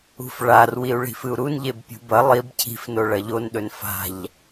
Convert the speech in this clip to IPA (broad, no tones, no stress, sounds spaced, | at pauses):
ṳ f ɭ a r w i u̯ ɭ i̤ f ɨ u̯ ɾ u n ʎ e b pʲ ṳ b ɐ lˠ i b cʰ i̤ f n o ɭ ɐ ʎ o n ɗ ɵ n f a̤ ʎ